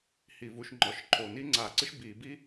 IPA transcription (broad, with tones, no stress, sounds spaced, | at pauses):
h i˧˩˧ v u˧˩˧ ʃ ŋ͡ǃ ɔ˩˧ ʃ ǃʰ o˨˩ n i˥ ŋ͡ǀ a˧˩˧ ǀ ɨ˥ ʃ b i˧˩˧ b i˥